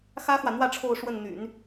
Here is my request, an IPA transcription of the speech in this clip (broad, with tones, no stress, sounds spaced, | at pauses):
x ä˥ x w ä˨ n̪ w ä˥˧ ʈ͡ʂʰ o˥˧ ʊ̯ ʂ w ə˥˩ n n̪ y̰˨˩˦ n